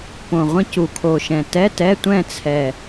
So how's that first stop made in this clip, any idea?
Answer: plain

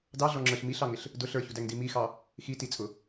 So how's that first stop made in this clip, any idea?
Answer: plain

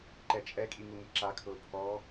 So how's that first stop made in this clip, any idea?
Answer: click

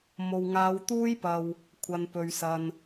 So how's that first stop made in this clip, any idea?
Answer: plain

